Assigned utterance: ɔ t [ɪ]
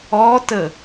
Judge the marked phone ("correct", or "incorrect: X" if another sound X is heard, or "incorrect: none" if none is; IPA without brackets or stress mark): incorrect: ə